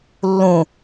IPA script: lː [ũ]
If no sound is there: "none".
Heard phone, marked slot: ũ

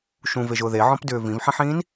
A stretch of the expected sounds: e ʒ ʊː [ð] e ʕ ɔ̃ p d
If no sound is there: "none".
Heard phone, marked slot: ð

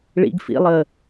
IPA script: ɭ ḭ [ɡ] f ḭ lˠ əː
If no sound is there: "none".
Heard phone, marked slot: ɡ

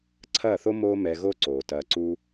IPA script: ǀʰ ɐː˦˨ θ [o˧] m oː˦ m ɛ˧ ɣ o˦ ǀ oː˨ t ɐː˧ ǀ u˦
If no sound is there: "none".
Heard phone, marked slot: o˦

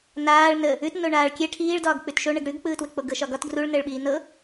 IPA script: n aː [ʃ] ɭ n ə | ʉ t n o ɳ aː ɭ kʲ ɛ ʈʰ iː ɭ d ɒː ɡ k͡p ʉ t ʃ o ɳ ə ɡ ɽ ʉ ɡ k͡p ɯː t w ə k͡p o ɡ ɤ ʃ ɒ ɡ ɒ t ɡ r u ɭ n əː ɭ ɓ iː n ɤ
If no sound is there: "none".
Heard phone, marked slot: none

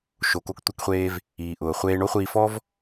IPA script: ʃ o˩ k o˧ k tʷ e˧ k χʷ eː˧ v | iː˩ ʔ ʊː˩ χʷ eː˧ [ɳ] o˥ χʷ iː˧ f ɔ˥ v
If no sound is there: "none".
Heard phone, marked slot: ɳ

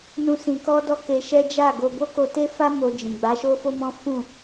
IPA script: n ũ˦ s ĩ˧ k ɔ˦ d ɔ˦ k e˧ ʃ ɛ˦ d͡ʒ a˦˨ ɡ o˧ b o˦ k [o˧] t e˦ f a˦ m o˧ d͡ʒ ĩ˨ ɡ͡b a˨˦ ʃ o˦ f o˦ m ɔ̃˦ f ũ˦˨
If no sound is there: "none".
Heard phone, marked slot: o˧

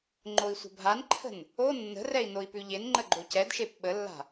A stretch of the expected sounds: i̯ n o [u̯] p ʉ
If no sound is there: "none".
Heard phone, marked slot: i̯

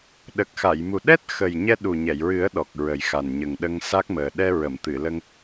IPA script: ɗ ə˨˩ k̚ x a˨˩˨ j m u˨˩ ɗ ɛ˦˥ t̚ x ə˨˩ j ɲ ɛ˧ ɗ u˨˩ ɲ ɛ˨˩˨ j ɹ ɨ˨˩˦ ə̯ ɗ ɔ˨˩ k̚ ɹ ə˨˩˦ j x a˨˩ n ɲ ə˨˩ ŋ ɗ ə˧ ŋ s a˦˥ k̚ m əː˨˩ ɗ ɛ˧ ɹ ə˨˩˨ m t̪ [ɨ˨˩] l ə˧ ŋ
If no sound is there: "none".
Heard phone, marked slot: ɨ˨˩˨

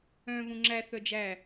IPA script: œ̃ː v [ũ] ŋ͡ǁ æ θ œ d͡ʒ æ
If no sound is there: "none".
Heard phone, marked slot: ũ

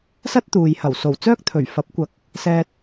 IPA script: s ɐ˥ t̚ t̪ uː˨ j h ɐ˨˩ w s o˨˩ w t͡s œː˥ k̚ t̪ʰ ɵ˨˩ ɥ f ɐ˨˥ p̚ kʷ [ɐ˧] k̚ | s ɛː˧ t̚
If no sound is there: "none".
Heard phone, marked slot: ɐ˨˥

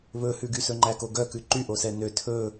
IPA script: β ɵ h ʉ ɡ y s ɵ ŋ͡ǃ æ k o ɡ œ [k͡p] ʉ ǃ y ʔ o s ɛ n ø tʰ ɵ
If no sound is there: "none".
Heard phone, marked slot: k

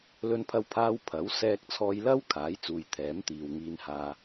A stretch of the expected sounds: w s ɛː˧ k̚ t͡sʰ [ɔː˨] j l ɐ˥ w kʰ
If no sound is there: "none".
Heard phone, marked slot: ɔː˧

